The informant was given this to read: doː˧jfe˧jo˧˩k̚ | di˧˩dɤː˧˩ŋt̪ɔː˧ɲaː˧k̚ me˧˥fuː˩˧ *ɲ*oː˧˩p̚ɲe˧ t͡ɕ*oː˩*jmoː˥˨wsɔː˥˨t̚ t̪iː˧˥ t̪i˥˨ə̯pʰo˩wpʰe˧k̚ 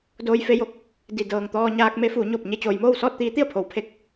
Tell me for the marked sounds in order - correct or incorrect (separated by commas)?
correct, correct